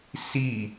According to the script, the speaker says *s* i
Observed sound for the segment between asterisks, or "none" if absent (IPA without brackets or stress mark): s